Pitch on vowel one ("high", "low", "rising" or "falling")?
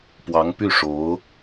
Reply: rising